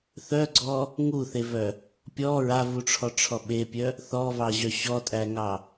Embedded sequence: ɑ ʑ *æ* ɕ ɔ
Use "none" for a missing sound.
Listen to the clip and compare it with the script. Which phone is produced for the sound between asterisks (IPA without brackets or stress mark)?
œ